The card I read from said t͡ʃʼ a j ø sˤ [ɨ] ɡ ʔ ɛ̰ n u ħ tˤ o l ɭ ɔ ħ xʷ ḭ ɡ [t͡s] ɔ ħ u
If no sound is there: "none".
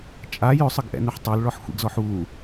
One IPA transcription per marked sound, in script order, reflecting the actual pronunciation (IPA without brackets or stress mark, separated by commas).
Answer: ɨ, z